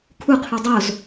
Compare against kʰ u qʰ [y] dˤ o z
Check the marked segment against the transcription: correct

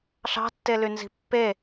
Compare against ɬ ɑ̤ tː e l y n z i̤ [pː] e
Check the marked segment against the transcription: correct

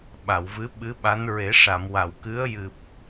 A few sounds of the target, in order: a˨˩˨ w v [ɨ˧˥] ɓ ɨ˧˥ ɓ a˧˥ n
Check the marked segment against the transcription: correct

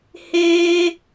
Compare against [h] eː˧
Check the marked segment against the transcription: correct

